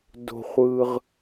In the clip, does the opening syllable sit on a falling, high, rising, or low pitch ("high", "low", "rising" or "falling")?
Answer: high